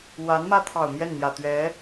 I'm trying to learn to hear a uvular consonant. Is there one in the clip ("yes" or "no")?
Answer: no